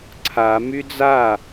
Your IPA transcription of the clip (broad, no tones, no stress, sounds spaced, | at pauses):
ǀʰ a m y d͡z a